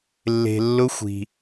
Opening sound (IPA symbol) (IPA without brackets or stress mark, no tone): lː